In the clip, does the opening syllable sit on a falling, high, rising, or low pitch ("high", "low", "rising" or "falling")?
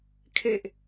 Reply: low